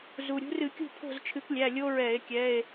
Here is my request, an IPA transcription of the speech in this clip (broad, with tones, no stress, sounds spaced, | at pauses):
z u˩ ɾʲ ṳ˨˦ r ɨ˧˩˧ kʲ ṳ˥˨ pʰ o̤˥˨ z t͡ʃʰ ɨ˨˦ k lʲ æ˩˧˩ lʲ o˦ ɹ ɛ˧˩˧ e̯ kʲ ɛ˩˧˩ e̯